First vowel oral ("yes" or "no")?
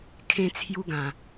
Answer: no